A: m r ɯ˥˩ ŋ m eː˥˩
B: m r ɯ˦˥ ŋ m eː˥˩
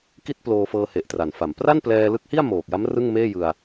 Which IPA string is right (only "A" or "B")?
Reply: A